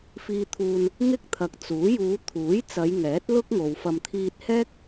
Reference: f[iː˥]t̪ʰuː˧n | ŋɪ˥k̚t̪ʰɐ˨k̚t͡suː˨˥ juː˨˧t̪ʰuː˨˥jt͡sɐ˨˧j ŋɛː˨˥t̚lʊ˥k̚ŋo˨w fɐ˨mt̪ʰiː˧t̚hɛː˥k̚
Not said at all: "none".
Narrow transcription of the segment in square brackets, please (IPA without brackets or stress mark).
iː˧